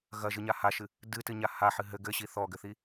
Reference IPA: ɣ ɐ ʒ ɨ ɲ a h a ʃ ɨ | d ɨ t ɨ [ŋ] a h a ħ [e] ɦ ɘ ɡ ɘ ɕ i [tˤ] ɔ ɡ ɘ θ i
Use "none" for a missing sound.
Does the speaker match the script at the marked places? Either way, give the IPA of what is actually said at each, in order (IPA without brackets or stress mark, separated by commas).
ɲ, ɨ, θ